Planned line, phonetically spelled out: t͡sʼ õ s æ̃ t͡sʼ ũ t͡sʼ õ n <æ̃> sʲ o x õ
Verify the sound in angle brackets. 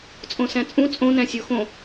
correct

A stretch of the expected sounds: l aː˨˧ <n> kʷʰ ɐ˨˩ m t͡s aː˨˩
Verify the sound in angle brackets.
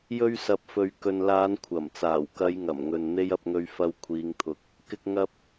correct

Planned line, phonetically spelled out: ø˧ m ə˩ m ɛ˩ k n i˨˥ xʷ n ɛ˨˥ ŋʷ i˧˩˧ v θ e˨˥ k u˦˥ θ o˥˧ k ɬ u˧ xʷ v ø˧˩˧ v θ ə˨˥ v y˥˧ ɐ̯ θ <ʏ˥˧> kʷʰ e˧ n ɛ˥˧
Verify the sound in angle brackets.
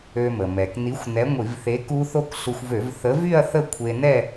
incorrect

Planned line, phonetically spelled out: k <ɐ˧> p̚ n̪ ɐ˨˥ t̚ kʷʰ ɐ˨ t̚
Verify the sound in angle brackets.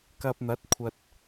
correct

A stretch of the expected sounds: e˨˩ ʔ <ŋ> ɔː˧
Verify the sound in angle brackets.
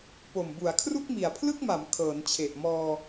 incorrect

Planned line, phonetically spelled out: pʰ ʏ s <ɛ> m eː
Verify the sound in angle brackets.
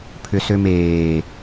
incorrect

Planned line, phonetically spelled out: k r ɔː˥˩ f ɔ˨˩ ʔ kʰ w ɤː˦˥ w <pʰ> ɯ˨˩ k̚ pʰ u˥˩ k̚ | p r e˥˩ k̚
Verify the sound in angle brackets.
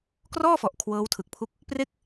incorrect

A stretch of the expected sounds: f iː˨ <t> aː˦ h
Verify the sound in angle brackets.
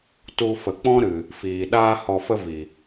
incorrect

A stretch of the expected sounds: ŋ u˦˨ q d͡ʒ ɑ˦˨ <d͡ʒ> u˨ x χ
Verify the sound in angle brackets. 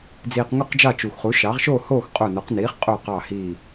incorrect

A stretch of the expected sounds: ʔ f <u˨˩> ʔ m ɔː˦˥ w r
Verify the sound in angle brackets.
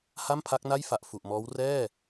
correct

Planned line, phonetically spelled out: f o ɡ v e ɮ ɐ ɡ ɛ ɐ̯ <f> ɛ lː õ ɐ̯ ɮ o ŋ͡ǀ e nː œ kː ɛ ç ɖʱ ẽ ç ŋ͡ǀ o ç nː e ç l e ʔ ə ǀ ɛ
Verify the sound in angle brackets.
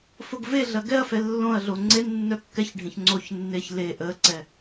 correct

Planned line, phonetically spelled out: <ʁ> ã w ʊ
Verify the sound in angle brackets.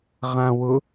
correct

